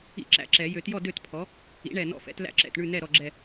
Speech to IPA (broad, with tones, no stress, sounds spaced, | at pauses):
ḭ˥˨ ǁ æ̰˧˩ ǁ ɛ˨˩˦ j ø˨˩˦ t j ɔ˥˨ d ø˥˨ t pʰ ɔ˩˥ | ḭ˩˥ ɳ ɛ˧˩ n ɔ̰˦ f ɛ̰˩˥ t l æ̰˥˨ ǁ ɛ̰˧˩ t ɳ ʉ˥˨ n ɛ˥˨ ɾ ɔ˧˩ ɡ͡ǁ ɛ˧˩